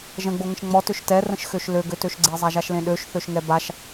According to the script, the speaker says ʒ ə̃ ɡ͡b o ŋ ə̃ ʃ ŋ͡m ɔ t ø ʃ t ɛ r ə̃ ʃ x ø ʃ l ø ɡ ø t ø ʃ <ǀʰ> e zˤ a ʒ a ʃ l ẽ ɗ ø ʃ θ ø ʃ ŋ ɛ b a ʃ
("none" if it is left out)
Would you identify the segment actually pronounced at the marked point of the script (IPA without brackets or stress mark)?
ɡ͡ǀ